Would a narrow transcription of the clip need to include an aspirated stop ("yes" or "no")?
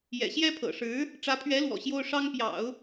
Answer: yes